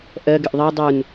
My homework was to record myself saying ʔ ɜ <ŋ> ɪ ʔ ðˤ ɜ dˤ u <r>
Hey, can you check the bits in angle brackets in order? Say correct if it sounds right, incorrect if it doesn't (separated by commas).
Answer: incorrect, incorrect